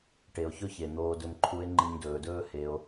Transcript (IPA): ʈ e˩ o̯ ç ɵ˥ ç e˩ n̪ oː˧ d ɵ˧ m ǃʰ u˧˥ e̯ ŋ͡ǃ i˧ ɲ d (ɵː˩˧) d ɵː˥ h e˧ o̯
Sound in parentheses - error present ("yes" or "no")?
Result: no